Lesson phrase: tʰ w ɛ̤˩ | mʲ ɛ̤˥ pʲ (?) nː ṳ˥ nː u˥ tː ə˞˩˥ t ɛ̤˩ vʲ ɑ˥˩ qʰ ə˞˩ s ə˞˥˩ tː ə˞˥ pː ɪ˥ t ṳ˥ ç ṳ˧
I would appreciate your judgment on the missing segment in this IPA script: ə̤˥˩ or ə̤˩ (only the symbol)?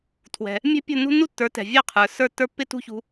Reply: ə̤˥˩